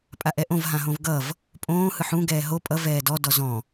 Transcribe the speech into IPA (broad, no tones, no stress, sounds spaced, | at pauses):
pʼ a ʔ ɛ ʔ õ v ɦ ã ɦ õ v ɡ ʌ v | pʼ õː h ɯ ħ ũ ɡ ɛː ɦ o pʼ ʌ v ɛː d ɔ d ɔ z ɔ̃